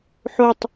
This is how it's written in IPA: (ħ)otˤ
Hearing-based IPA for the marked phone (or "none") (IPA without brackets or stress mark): ħ